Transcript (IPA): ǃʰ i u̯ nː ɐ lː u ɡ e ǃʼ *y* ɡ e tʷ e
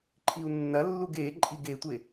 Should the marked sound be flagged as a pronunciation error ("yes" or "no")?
yes